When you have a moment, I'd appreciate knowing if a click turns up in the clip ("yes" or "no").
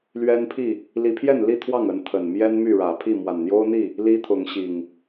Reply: no